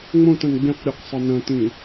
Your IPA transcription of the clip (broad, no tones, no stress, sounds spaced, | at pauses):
ŋ͡m õ t ɐ̃ n ɡ͡b ĩ q ɾʲ ɨ q sˤ ɐ n ɐ̃ t ĩ